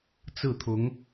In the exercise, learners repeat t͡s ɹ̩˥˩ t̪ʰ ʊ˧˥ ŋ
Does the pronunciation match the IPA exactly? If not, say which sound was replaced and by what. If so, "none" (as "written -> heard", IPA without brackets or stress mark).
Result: none